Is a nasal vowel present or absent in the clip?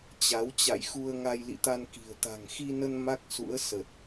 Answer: absent